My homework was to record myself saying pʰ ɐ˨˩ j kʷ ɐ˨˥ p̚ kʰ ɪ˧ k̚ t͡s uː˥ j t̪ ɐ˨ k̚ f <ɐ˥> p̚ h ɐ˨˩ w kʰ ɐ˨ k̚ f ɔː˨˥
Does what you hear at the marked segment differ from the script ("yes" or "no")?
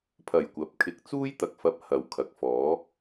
yes